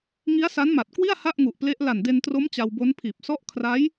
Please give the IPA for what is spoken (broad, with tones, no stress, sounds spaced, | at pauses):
ŋ i˦˥ a̯ s a˦˥ n m a˨˩ t̚ k w i˥˩ a̯ h a˥˩ ʔ ŋ u˨˩ ʔ p l e˦˥ ʔ l a˨˩ n d e˧ n t r o˦˥ m t͡ɕ a˧ w b o˦˥ n pʰ iː˨˩ p̚ s ɔ˦˥ ʔ kʰ r a˦˥ j